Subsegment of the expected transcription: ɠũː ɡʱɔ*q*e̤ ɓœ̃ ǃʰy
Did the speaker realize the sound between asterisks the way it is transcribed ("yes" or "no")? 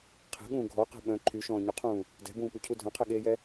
yes